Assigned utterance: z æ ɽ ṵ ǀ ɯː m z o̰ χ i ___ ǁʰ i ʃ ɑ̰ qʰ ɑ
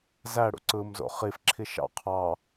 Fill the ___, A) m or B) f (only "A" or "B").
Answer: B